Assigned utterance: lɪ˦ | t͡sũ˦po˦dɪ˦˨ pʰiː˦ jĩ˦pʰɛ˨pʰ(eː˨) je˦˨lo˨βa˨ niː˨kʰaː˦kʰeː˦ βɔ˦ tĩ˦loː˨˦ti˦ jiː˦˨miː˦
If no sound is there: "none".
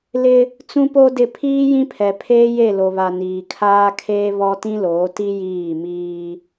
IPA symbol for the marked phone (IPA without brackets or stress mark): eː˦